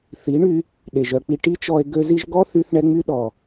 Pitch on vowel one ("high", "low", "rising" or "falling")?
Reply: rising